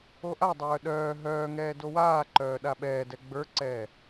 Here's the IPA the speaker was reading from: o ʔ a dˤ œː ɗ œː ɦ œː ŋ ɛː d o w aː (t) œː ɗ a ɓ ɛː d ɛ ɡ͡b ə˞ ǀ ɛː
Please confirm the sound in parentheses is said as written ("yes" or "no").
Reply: no